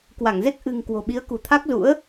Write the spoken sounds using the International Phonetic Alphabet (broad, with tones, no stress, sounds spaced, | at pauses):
k w a˧˩ ŋ z e˦˥ k̚ ʔ ɨ̤˨˩ ŋ k w o̤˨˩ ɓ i˨˦ ə̯ k ṳ˨˩ t̪ʰ a˦˥ k̚ z ṵ˧˥ ə̯